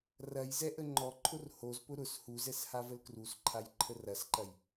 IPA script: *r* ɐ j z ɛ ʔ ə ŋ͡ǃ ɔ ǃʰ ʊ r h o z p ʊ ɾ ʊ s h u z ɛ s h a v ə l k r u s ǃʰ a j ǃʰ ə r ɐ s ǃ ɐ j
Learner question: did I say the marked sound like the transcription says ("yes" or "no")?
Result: yes